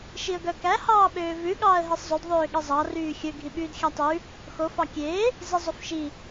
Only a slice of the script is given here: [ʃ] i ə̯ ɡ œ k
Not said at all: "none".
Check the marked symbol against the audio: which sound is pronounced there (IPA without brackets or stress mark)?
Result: ʃ